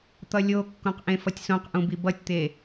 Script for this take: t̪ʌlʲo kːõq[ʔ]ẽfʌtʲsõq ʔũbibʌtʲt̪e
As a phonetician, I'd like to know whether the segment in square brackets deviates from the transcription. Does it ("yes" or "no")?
no